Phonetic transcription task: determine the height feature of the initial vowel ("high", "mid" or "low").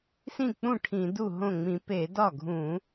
high